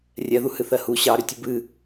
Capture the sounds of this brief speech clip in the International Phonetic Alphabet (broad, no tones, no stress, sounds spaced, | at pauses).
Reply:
rʲ ɛ ð u h ɨ θ ɜ h u ɕ ɑ ɾ ʏ tʲ ɨ b ɨ